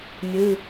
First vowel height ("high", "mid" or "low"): high